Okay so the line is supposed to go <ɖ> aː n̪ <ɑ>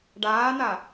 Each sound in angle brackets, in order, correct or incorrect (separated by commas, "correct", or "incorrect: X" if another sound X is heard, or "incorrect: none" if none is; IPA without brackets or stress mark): correct, incorrect: a